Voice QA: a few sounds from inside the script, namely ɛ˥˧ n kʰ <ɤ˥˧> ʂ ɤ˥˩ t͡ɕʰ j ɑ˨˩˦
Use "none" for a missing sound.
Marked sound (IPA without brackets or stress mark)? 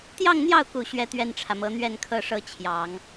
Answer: ɤ˥˧